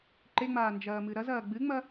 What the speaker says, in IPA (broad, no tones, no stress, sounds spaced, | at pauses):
ǃ e ŋ͡m aː n d͡ʒ ɐː m ɨ ɾ ɐ z ɐː ɡ͡b ɨ ŋ͡m ɐ